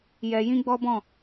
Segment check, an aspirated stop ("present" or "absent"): absent